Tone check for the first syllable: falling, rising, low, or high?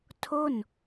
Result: falling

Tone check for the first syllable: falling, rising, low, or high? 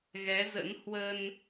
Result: rising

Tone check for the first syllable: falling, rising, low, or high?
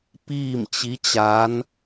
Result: falling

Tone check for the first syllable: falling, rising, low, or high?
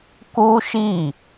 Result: high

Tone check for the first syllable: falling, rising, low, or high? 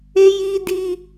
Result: high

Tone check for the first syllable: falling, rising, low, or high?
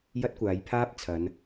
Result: high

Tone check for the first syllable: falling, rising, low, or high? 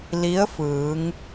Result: rising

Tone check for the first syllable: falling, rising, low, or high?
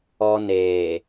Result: high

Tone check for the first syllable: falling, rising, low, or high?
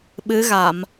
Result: rising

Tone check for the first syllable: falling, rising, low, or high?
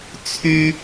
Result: high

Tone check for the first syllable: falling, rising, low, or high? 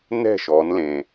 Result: falling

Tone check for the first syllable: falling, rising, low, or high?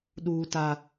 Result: high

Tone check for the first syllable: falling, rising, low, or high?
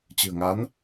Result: low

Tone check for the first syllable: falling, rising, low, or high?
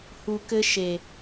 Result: low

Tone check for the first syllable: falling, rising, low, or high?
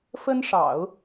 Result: high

